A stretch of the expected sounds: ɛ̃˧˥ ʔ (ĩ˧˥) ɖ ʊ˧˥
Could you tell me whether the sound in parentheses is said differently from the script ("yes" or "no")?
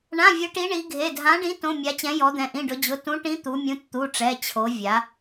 yes